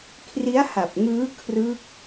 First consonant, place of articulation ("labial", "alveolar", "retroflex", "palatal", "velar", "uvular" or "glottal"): velar